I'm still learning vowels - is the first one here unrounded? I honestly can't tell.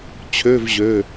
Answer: no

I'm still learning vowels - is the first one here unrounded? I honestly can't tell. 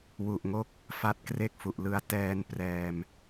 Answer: no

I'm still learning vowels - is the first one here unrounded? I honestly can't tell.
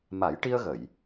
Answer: yes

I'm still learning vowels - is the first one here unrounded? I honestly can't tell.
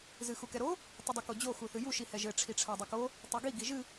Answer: yes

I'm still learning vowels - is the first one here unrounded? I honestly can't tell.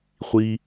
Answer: yes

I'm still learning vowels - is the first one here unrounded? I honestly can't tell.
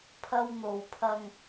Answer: yes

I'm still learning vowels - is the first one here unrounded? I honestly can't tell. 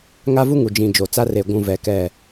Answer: yes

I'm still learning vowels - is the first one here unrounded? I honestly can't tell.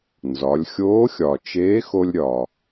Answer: no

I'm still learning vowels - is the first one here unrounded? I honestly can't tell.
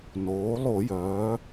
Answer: no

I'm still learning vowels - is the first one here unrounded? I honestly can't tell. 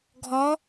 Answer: no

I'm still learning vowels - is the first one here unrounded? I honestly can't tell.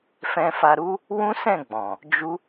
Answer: yes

